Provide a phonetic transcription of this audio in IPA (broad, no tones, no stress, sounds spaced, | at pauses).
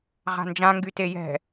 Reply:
ʁ a̤ n d͡ʒ ã ŋ ɡ y t e j ɛ̤